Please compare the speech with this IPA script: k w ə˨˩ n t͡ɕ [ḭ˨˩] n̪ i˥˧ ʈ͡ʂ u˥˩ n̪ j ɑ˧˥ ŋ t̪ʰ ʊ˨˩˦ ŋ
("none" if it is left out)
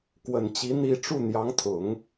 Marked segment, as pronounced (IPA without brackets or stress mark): i˧˥